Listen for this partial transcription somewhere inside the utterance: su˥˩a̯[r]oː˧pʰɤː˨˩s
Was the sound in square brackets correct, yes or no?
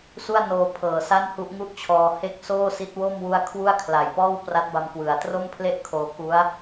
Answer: no